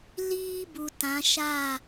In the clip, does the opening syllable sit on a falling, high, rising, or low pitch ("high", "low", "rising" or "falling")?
high